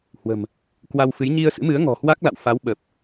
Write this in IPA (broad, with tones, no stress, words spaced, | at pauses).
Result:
hwə̤˨˩m | kwa˧wfɨ˨˦j ɲi˧ə̯sɨ̰˧˥mɨ˨˦ə̯ ŋɔ̤˨˩hwa˦˥k̚la̰˧˨w fa˨˦wɓə˨˩p̚